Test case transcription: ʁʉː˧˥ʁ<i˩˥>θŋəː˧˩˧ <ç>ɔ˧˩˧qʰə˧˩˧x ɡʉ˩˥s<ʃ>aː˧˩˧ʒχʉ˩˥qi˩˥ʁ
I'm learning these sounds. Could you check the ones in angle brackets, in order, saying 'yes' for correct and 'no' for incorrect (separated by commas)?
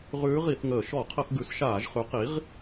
no, no, yes